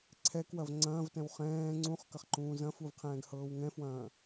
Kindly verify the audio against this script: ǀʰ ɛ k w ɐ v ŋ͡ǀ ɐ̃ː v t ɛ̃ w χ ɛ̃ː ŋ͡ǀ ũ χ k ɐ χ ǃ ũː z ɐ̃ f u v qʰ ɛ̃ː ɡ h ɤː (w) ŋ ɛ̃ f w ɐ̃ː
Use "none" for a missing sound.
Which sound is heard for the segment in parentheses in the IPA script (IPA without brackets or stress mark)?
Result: w